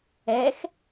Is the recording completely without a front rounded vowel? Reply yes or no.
yes